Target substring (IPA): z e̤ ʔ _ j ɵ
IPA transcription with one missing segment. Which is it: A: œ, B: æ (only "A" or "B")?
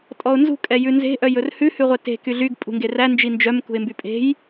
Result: A